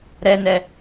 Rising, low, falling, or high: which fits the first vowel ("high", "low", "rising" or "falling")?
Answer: high